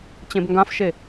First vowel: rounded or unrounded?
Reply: unrounded